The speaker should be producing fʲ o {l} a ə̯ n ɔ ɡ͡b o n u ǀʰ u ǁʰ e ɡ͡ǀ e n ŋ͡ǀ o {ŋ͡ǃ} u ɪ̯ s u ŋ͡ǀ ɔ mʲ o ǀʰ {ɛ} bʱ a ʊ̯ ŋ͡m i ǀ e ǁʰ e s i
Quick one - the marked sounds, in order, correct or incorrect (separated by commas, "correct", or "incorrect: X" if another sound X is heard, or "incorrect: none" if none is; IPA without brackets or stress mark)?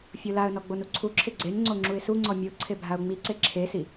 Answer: correct, incorrect: ŋ͡ǁ, incorrect: e